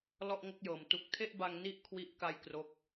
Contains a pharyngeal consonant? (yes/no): no